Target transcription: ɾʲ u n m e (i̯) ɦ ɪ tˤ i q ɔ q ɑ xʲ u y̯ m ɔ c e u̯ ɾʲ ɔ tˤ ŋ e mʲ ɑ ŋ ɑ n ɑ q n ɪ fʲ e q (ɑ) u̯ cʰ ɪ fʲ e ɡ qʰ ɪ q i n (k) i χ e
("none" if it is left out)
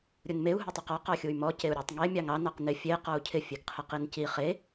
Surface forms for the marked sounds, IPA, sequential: u̯, ɔ, c

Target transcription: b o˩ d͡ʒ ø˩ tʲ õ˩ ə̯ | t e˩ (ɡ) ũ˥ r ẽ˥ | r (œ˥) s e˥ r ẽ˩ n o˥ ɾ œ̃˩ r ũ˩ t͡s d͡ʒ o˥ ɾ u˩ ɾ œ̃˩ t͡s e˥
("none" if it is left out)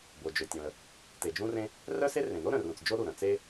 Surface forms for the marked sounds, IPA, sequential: d͡ʒ, œ˥

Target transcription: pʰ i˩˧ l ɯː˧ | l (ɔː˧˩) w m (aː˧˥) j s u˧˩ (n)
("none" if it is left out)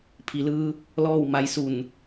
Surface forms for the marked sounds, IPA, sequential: ɔː˥˨, a˧˥, n

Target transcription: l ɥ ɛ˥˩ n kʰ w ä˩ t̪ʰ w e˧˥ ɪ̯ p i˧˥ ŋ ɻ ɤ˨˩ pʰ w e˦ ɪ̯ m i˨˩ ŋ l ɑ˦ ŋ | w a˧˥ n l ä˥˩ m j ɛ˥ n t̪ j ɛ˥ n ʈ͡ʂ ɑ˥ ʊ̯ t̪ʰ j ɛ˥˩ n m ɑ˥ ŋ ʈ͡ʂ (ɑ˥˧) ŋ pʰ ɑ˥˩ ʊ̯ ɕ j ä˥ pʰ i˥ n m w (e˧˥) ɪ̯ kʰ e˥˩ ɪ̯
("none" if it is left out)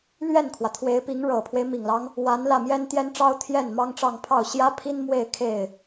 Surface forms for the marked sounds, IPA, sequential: ɑ˥˧, e˥˧

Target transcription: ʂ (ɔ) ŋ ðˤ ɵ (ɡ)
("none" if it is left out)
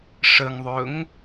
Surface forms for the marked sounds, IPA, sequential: ə, ŋ

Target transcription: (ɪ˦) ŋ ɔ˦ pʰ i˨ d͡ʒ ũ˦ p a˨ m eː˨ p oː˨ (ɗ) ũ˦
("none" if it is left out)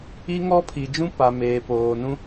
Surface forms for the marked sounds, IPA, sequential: i˦, n

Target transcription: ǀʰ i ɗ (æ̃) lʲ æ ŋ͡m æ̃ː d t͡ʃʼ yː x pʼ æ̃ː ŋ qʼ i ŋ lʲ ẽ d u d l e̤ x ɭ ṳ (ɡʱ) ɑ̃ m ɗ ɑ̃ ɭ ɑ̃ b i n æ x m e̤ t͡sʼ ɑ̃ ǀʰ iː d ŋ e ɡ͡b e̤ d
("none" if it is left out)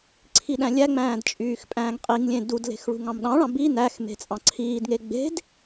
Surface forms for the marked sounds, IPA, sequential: æ̃, ŋ

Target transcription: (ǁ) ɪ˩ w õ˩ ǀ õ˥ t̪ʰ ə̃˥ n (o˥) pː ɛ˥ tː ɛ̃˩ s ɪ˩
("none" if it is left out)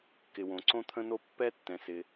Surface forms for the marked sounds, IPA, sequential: k, o˥

